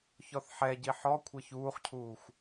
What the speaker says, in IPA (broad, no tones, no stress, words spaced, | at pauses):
çɔθħɛɟi ħɔ kʷʰɛçuːχcʰuːxʷ